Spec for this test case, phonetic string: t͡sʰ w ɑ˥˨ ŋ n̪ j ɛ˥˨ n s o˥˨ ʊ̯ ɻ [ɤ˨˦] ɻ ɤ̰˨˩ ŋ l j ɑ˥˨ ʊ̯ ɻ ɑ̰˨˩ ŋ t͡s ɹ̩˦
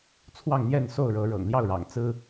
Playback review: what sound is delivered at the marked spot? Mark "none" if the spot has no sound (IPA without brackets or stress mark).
ɤ˨˦